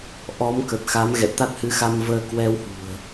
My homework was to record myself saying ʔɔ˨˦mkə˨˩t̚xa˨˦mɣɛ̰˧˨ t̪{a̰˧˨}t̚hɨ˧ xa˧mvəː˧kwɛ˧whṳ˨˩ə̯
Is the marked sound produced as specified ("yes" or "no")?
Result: no